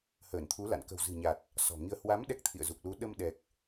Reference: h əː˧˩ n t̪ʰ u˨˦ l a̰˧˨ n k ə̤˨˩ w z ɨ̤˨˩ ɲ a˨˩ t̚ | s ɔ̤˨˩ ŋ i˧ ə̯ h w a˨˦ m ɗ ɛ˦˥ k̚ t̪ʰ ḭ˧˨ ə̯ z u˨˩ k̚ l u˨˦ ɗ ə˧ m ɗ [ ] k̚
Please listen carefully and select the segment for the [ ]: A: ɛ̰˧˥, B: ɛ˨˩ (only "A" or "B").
B